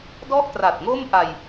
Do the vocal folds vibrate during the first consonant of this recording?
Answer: yes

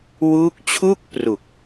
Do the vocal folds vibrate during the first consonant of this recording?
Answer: yes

